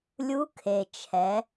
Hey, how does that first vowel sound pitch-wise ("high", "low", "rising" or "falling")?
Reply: rising